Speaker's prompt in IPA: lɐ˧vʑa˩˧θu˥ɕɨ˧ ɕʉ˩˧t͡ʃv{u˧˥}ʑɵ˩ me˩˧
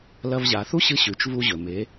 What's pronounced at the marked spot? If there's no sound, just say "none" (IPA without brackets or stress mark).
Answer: u˧